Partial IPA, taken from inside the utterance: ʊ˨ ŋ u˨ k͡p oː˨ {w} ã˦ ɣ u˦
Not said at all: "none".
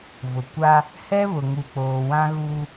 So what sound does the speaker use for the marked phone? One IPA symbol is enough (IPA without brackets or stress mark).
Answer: w